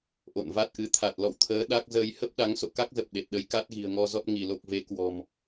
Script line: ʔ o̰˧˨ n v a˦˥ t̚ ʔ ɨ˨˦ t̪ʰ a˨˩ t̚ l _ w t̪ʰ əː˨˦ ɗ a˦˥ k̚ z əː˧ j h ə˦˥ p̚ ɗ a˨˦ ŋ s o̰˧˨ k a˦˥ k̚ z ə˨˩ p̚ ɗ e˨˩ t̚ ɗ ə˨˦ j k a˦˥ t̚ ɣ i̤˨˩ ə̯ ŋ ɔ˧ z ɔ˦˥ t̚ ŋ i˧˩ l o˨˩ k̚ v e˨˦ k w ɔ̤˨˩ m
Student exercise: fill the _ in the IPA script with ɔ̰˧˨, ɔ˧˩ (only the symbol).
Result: ɔ̰˧˨